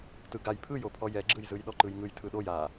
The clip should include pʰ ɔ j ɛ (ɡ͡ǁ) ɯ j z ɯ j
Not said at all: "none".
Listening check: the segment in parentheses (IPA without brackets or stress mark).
ɡ͡ǁ